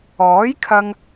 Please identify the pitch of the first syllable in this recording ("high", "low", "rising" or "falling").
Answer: rising